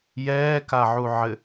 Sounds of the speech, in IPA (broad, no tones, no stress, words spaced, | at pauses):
jɛːkaʕuʕɘ